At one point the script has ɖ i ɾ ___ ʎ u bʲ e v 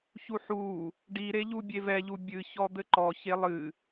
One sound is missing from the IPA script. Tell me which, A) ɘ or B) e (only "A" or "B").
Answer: B